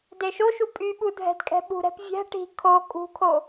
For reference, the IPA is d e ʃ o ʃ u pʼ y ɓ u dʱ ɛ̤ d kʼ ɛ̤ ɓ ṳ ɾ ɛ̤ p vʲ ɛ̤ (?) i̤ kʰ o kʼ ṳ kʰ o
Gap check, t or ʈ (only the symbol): ʈ